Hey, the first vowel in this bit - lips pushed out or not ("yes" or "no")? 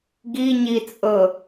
no